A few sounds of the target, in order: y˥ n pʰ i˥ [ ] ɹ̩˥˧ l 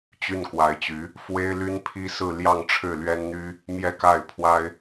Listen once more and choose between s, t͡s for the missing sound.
s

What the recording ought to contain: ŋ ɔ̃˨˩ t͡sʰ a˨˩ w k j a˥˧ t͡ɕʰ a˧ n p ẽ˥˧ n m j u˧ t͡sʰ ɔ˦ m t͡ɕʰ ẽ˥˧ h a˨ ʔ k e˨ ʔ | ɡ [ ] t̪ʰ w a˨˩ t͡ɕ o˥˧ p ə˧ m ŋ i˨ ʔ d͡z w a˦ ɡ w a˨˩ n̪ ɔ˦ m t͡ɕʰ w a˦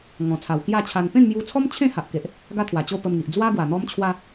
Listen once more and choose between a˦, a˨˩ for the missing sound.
a˦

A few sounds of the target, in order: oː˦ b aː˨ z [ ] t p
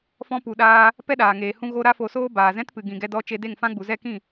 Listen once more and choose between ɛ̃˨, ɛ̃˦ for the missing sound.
ɛ̃˦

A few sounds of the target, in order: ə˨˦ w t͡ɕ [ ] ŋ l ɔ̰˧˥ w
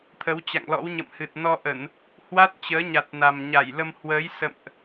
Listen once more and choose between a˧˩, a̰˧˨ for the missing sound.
a̰˧˨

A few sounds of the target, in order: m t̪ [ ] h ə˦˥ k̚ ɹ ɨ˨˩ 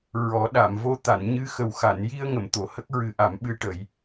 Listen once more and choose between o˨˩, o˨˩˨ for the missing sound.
o˨˩˨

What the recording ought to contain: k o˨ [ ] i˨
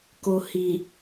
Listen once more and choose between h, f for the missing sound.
h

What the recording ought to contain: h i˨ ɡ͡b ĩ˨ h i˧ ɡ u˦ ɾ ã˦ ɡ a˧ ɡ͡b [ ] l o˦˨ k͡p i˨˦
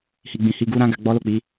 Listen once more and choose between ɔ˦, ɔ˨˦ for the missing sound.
ɔ˦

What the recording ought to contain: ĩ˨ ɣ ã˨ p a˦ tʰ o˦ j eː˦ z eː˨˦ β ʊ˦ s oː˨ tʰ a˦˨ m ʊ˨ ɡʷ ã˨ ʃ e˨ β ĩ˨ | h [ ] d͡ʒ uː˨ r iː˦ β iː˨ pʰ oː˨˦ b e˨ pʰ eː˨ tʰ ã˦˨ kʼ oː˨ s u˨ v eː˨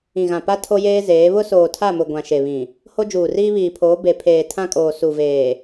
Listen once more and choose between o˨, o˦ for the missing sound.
o˦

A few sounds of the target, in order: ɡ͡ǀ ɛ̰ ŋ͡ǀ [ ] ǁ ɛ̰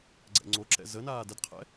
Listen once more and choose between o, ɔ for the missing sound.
o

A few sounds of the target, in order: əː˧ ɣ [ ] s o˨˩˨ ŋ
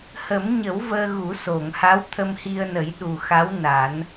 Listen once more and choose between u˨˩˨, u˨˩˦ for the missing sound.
u˨˩˦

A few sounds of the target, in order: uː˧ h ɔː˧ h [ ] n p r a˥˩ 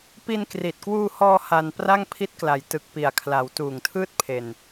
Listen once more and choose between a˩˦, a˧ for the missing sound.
a˧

